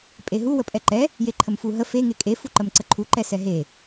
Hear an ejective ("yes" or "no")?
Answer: yes